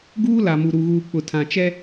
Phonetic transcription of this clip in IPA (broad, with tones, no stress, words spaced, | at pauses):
ɡuː˦ la˨mu˨ɾu˨ɣuː˨ k͡pʊ˨tʰã˨ t͡ʃɛ˦